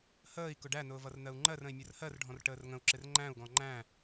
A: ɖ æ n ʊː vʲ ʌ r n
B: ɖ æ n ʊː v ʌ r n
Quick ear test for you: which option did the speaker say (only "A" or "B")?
B